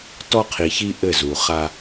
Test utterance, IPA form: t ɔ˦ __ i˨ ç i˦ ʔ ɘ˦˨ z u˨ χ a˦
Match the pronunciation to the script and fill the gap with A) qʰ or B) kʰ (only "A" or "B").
A